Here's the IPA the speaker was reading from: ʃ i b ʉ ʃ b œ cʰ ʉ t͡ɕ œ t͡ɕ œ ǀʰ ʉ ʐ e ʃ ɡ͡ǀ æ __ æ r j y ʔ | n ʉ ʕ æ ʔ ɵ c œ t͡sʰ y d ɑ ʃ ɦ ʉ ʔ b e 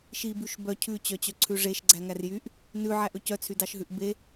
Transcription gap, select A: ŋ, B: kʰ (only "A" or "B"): A